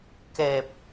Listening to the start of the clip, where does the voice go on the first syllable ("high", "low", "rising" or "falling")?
low